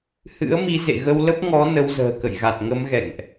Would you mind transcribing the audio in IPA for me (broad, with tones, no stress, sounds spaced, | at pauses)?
h ɨ̰˧˥ ə̯ m i˨˦ z ḛ˧˨ ɣ ə˧ w l ə˦˥ p̚ ŋ ɔ˨˦ n ə˨˦ w z ə̤ː˨˩ k ə̰˧˨ j ɣ a˨˩ t̚ ŋ ə˨˦ m ɣ ɛ̰˧˨ ŋ ʔ